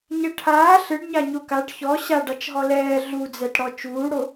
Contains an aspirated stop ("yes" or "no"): yes